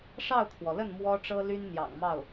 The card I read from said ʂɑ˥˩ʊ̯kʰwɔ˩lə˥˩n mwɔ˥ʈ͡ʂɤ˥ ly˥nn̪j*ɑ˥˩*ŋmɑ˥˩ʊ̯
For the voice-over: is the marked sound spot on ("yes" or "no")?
no